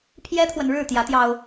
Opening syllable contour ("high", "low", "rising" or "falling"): high